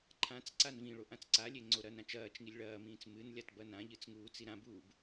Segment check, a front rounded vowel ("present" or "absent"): absent